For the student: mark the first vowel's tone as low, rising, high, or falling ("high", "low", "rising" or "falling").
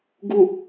low